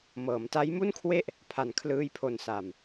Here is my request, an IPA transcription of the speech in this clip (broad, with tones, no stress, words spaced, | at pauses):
mɤː˩˦mta˦˥jmu˥˩nkʰwe˥˩ʔ | pʰa˨˩nkʰlɯː˧jpʰo˨˩nsa˨˩m